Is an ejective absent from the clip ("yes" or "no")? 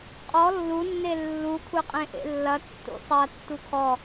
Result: no